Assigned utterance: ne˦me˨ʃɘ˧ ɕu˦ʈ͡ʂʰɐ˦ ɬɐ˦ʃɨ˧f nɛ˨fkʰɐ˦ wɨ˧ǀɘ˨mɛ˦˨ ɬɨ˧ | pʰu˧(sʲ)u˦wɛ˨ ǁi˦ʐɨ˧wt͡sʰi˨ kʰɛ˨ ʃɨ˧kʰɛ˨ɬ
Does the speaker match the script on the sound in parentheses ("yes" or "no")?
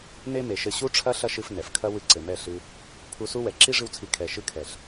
no